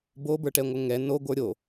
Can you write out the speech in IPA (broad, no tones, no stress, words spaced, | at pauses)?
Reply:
bobə˞ʈɛŋʷə ŋɛ noɡʷə˞ ɾʲo